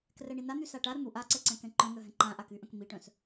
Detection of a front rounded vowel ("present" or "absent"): present